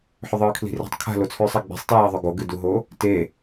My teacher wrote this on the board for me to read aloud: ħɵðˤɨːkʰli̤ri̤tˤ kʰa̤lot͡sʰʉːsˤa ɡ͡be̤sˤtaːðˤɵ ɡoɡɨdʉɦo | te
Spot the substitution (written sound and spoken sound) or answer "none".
ʉ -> u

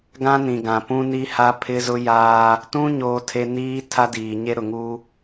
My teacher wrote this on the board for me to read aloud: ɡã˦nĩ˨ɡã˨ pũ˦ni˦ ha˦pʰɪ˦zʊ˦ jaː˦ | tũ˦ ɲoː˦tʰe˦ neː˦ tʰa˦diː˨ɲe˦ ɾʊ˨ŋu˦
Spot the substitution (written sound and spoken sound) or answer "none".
eː˦ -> iː˦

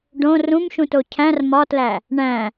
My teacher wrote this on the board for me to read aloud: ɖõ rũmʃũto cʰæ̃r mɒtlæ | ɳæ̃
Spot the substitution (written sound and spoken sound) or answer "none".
none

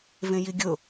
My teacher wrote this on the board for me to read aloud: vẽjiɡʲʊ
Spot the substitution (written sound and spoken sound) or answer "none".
none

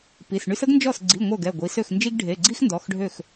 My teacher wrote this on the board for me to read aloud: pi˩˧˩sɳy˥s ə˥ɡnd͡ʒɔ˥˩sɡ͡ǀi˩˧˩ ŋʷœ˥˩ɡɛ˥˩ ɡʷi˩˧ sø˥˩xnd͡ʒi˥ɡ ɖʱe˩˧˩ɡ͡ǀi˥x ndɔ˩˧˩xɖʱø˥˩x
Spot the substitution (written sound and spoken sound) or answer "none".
none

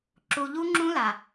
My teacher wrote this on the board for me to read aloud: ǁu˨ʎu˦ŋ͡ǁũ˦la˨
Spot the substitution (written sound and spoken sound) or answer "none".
none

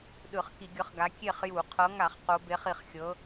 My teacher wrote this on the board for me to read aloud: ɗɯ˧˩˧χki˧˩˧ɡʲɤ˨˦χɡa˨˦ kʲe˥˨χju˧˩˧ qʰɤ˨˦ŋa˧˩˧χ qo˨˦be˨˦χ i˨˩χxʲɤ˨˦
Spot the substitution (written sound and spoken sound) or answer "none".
none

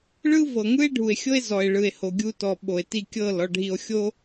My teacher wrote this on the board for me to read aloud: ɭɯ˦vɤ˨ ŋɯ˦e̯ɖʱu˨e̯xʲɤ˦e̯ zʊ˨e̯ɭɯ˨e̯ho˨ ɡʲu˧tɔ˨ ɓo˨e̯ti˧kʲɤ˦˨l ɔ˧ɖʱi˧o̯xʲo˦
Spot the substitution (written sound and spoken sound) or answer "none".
ʊ˨ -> ɔ˨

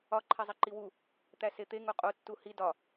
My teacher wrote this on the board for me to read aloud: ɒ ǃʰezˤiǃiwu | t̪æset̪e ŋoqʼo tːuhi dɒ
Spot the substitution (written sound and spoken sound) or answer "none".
none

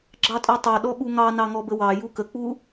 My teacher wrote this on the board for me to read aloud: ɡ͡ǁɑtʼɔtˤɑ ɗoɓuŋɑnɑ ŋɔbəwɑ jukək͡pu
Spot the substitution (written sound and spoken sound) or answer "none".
o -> ɔ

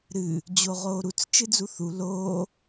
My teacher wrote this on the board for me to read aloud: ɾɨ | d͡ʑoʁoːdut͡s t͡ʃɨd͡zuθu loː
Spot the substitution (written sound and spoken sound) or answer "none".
d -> ɾ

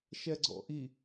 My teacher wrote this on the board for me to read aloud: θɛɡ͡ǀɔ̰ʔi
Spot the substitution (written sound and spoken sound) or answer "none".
θ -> ʃ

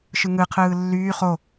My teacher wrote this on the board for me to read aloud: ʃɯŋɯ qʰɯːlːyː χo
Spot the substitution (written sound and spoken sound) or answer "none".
none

